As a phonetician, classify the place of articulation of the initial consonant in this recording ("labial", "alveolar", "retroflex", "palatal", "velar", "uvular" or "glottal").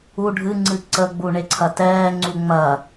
retroflex